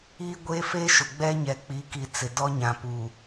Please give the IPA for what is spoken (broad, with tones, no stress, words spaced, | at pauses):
iː˦ɡʷeː˦feː˦ ʃʊ˨ɡ͡bɛ˦ɲɛ˨ k͡pi˨˦ki˨ t͡sɪ˨dɔ˦ɲã˨puː˨